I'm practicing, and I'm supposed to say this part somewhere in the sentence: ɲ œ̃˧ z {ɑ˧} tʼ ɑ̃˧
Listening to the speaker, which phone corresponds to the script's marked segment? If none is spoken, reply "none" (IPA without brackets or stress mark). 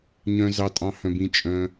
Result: ɑ˧